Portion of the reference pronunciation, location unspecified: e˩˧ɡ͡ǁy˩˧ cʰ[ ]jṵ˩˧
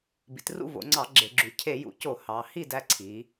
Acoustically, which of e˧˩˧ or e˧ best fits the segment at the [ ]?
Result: e˧˩˧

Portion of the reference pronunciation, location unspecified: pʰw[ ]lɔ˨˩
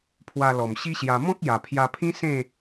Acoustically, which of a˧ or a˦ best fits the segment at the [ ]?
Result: a˧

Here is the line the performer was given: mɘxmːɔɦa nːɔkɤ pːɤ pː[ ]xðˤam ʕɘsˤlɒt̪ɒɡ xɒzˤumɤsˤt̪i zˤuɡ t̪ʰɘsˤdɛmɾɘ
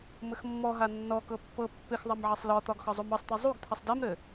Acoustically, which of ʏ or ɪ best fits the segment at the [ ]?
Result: ɪ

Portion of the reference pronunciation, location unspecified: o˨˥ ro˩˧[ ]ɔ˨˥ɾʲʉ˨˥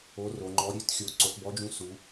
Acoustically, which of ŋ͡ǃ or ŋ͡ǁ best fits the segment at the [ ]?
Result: ŋ͡ǃ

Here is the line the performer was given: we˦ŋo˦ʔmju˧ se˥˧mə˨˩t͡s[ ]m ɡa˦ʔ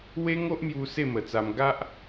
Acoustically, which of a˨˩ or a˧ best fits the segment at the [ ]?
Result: a˧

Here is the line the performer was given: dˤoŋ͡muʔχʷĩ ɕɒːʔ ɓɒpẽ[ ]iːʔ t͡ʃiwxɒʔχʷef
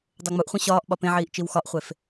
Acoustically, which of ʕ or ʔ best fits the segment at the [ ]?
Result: ʕ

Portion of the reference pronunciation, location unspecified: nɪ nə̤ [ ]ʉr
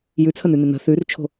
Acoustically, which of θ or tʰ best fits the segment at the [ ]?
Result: θ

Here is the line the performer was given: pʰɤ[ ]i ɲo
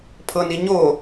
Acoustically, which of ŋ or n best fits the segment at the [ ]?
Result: n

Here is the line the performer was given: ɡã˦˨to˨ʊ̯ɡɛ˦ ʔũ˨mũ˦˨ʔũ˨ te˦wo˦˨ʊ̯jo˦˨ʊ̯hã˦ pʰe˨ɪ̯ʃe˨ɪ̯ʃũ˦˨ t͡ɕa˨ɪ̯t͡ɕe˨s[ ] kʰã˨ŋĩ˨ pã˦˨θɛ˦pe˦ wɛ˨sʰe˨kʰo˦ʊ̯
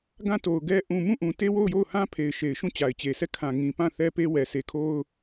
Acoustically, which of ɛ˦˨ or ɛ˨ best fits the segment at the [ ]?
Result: ɛ˦˨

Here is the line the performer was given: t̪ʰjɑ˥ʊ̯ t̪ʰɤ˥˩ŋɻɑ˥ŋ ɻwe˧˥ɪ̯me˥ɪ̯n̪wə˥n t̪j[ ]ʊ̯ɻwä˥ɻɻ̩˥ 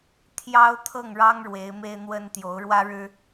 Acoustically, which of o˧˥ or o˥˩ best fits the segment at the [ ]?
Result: o˧˥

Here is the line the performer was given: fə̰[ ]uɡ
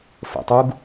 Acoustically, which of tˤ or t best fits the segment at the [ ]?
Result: tˤ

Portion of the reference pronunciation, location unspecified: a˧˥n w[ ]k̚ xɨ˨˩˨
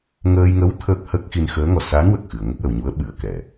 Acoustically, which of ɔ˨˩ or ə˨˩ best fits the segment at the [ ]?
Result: ə˨˩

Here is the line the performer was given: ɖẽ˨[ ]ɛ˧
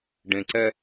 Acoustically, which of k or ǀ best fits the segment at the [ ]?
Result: ǀ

